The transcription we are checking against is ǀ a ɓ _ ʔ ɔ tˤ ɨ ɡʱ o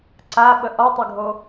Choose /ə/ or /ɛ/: ə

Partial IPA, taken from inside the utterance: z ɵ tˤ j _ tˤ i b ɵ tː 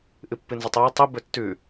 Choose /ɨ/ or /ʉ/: ɨ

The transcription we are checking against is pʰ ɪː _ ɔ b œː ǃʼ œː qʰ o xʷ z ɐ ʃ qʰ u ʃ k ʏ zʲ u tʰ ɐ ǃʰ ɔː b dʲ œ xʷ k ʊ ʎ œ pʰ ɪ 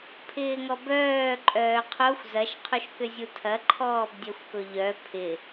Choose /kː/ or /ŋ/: ŋ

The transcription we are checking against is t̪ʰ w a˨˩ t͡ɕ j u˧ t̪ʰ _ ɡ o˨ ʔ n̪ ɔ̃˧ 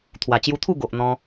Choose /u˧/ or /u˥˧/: u˥˧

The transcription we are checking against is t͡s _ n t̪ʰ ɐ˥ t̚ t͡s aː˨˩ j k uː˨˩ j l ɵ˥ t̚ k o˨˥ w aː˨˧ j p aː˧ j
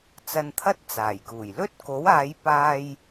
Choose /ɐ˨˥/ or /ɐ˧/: ɐ˧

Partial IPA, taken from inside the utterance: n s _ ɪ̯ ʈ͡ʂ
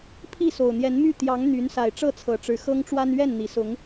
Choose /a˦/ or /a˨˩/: a˨˩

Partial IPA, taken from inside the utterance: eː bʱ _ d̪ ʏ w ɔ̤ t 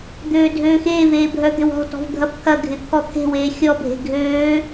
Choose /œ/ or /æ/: œ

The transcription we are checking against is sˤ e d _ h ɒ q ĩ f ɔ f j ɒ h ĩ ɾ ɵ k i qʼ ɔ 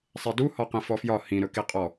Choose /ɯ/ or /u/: u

